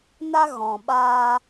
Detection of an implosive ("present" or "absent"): present